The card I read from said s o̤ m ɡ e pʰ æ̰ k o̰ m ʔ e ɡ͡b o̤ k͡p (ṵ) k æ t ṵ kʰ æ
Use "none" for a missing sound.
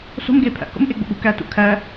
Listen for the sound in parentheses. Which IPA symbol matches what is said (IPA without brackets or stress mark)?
ṳ